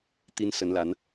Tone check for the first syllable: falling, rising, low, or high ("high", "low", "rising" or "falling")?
high